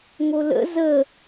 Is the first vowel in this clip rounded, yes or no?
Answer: yes